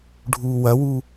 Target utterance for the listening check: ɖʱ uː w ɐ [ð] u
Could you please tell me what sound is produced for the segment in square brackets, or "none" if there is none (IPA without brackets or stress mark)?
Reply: w